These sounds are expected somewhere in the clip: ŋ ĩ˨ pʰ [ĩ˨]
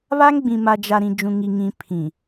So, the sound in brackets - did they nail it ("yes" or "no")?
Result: yes